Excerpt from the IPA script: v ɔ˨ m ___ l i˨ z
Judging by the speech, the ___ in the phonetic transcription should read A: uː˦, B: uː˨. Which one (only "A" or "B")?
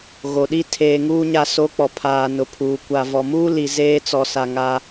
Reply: A